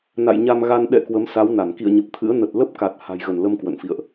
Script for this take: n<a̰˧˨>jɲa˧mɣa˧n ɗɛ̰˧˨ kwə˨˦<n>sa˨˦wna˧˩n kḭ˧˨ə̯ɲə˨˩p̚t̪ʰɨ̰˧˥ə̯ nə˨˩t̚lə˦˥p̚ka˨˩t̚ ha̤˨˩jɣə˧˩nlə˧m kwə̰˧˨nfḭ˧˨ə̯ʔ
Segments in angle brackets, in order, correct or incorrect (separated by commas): correct, incorrect